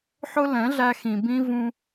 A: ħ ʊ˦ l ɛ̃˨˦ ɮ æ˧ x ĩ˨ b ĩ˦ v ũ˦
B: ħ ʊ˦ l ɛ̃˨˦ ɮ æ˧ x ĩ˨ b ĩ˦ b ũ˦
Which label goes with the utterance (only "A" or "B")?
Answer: A